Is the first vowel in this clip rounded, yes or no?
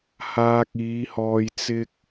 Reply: no